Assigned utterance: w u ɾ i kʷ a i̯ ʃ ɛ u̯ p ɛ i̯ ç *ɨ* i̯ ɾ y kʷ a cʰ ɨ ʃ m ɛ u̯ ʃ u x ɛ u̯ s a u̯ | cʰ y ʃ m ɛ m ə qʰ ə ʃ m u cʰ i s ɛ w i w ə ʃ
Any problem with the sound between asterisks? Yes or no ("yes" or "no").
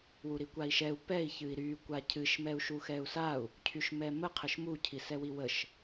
no